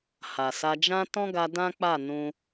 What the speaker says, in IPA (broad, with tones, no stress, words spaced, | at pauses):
ha˨sa˧d͡ʒã˦ tɔ̃˦ɡa˧ dã˦k͡pa˦˨nũ˧